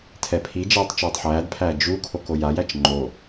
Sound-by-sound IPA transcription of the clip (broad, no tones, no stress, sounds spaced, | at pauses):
tʰ ɛ pʰ i d͡ʒ ɛː tˤ t͡ʃ uː tˤ ħ æː d pʰ æː d͡ʒ u kʰ o k o j a j æ t͡ʃ ŋ͡ǃ o